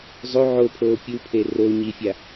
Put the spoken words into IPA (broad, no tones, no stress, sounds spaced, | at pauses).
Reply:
zˤ o ʕ o pʰ oː pʲ u pʰ e r o ɲ i fʲ a